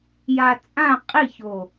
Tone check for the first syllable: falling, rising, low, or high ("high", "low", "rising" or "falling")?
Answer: low